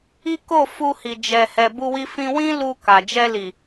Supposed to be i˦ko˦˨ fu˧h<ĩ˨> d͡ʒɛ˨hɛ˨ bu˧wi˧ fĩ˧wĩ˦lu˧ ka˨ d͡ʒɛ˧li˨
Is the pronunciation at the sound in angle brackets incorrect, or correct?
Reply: incorrect